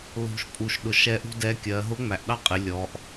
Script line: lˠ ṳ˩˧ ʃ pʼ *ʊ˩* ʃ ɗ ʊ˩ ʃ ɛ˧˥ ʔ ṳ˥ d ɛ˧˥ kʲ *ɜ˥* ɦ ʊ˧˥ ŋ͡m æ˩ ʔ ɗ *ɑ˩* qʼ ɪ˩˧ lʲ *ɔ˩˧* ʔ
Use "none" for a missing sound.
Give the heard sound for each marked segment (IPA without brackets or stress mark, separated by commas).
u˩, ɜ˩˧, ɑ˥, ɔ˩˧